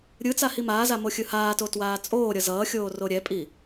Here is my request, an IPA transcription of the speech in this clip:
ɾʲɯt͡sa himaːza moxʲɯhaːto twaːt͡sʼoːɾʲʌ zʌːxʲoː roɾʲɛpʼi

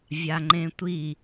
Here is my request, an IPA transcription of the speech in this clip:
vʲaŋ͡ǃẽtʷi

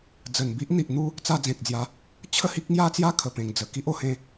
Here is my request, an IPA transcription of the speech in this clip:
d͡zə˨˩n bi˦ʔ n̪i˨ʔn̪u˦ | t͡sa˧d͡zẽ˨k̚d͡zja˨˦ | t͡ɕʰə˥˧hi˦k̚ŋja˦t͡sja˦ kʰə˨˩pẽ˨˩ŋd͡zə˨˩ ki˦ʔo˥˧hẽ˧

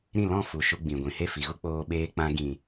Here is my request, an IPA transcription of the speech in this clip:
ɾĩ˦˨lɔ̃˦˨fu˨ ʃu˧ɡ͡bĩ˨ɡʷĩ˨ he˦˨fi˨ɣu˦ k͡poː˧ɓeː˧k͡pã˧ ɡĩ˨

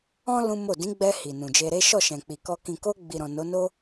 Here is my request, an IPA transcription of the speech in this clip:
ɔ̃˦ lũ˦mo˦˨ dĩ˨˦ɡ͡bɛ˧ hi˨ nũ˨d͡ʒe˧ɾe˦ ʃɔ˦˨ʃɛ̃˨k͡pi˨kɔ˧ kĩ˨ko˧ ɡ͡bi˨ɾɔ̃˨ no˨˦no˦

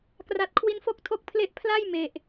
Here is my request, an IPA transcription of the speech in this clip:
kra˨˩t̚kʰwi˧nfo˥˩k̚ tʰo˥˩k̚ pʰle˥˩ʔ pʰla˥˩j me˨˩ʔ

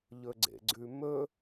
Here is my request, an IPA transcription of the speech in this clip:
ʎɵɡ͡ǀḛɡ͡ǀʉmɵ

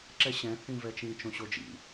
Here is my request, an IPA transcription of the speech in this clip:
ǁɛɕɛ̃ θĩvɛt͡ʃĩ t͡ʃõɕod͡ʒḭ

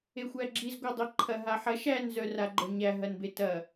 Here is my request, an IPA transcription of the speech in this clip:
exʷæɡ͡ǁiz ɡʷadˤiǃʰɐ ɦaħɐ ʃæn zœraɡ͡ǃœɲæ ɦɐnbetɐ

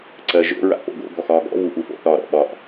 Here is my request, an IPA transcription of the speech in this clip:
ǀɜʒo̰ ɹa̰po̰ɡo̰ ɡɔxɒːɡɔ̰ vuʔufo̰ θɒɾɔ̰ ɓɒʔ

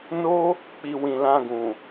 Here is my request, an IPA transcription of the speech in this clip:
no˦ | k͡pi˨ wĩ˨lã˧ɡũ˨

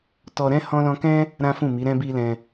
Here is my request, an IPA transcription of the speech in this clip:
tɔ˧ɾɛ̃˦ hɔ̃˦lɔ̃˦ kɛ̃˦ | ɾã˦fũ˦˨ mi˨˦ ɾɛ̃˧bi˧lɛ̃˧

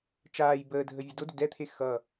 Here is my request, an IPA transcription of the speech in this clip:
t͡ʃaːj bəːdʱə vʲədodʏ dɛt̪ʰe xʌ

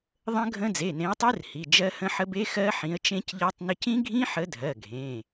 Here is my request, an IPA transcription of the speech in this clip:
ðˤə̃˦˥ɡʱə̃˦˥ d͡ze˩˧˩nẽ˨˦ə̯tˤe˦˥r hi˩˧˩ d͡ʒɜ˦˥hə̃˦˥ħə˦˥b e˦˥xɜ˦˥ ħĩ˨˦ə̯t͡ʃẽ˦˥cʎɜ˦˥tˤnə˦˥c ĩ˦˥ɡʱĩ˦˥ħə˨˦dʱɜ˩˧˩ ɡʱẽ˩˧˩

